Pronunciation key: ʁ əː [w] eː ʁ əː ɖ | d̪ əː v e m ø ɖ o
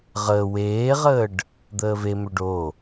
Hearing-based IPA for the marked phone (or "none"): w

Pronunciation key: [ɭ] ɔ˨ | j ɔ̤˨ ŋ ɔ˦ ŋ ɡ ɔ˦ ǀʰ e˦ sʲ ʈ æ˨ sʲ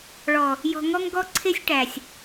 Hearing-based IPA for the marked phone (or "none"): ɭ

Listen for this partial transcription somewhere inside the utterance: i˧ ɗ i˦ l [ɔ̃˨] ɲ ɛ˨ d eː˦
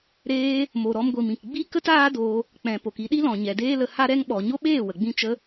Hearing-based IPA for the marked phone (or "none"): ɔ̃˨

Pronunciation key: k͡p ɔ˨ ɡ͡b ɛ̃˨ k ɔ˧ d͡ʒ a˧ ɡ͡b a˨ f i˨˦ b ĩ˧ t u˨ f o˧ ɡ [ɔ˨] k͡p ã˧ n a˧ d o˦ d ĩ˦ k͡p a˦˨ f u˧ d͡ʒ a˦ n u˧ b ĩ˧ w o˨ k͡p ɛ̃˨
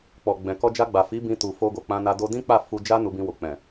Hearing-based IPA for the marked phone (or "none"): o˨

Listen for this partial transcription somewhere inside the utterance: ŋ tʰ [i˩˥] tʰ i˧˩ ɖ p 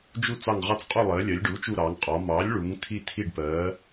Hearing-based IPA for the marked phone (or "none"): i˧˩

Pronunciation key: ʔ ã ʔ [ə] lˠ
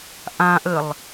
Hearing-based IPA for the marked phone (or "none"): ə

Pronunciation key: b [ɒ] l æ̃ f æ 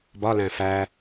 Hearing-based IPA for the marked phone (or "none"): ɒ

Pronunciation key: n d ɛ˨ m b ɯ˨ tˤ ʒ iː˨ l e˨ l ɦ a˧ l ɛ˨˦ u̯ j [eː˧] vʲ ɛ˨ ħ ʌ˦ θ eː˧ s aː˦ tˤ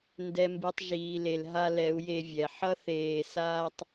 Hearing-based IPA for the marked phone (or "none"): e˧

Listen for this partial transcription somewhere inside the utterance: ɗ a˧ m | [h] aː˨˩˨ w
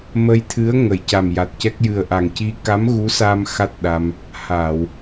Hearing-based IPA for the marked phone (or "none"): h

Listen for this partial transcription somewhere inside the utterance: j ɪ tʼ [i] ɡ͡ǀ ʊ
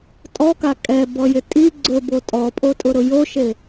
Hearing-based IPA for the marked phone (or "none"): i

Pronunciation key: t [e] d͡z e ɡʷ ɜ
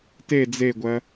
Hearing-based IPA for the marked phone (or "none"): e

